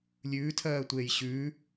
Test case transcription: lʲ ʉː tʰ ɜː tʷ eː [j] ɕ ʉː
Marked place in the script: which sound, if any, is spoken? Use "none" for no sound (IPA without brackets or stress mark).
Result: j